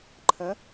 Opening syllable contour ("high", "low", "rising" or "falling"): rising